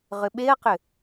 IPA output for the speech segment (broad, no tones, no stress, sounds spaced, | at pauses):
ʁ ʏ ɓ e ɐ̯ q ʏ